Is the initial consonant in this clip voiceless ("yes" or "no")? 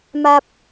no